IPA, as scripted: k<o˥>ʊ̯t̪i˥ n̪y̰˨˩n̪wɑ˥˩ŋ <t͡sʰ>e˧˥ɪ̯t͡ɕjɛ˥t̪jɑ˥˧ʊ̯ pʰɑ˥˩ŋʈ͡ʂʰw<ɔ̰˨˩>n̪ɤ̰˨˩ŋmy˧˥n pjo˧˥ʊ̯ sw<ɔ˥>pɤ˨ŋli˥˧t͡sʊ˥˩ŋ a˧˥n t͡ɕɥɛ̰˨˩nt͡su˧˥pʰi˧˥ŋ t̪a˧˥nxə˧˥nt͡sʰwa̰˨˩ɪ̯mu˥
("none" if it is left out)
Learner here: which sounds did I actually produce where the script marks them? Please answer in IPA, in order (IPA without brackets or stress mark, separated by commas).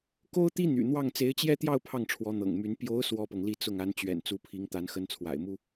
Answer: o˥, t͡s, ɔ˧˥, ɔ˥